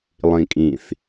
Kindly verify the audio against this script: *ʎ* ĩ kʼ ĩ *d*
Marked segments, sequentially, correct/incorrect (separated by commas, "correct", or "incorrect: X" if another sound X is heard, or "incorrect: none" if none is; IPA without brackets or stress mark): incorrect: lˠ, incorrect: θ